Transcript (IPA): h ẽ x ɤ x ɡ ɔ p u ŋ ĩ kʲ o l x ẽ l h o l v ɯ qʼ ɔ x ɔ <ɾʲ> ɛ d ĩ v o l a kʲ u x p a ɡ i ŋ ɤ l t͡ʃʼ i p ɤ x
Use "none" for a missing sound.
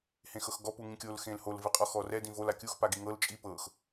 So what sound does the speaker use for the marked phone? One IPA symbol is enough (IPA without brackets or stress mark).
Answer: r